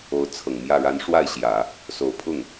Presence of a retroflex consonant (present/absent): present